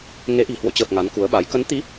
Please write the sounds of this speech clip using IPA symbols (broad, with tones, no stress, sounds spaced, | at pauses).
ŋ e˨˦ ʔ i̤˨˩ h w o̰˧˨ t͡ɕ əː˨˩ p̚ ŋ a˨˦ n k u˨˦ ə̯ ɓ a˨˦ j k ə˨˦ n t̪ i˨˦